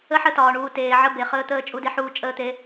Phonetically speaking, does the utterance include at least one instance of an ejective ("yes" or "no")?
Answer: yes